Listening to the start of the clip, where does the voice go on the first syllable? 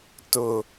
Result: low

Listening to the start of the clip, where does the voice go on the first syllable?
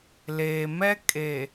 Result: low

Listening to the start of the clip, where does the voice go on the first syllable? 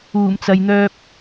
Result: low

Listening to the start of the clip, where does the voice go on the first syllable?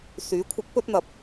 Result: rising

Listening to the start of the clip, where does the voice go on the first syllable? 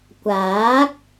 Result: rising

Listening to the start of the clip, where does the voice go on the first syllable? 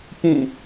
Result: falling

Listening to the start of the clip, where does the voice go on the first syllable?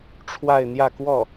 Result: falling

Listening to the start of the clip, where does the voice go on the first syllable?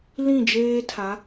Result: falling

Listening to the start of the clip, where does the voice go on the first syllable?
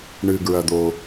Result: low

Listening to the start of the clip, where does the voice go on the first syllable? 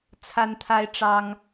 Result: high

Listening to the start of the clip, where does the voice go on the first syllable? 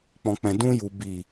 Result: low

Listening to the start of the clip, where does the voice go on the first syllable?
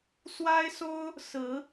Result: high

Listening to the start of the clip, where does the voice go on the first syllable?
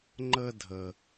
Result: high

